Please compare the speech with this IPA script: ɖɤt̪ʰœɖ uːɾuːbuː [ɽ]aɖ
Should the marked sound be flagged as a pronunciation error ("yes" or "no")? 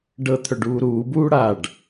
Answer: no